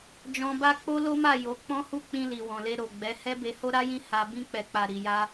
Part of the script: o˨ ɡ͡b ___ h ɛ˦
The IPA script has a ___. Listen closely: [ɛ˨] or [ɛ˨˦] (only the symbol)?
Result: ɛ˨˦